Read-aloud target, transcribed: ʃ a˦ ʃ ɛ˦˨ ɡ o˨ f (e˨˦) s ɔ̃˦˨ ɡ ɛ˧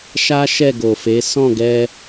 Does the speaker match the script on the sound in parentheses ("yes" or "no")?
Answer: yes